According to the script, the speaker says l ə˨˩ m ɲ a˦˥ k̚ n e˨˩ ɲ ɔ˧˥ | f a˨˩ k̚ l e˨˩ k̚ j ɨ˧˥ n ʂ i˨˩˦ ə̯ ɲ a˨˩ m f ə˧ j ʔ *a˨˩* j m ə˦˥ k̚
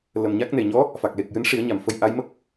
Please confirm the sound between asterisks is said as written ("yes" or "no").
no